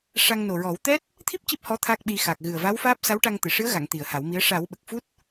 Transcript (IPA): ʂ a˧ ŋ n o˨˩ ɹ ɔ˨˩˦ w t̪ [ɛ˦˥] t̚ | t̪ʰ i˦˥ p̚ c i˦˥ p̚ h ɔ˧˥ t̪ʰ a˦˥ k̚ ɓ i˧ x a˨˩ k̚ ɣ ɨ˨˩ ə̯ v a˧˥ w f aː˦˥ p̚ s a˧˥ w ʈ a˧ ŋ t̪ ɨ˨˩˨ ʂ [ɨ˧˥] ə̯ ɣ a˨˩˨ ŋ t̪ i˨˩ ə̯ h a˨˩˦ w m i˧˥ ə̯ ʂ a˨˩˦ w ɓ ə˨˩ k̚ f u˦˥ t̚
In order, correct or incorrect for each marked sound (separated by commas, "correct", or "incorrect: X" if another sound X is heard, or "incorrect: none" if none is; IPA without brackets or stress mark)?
correct, correct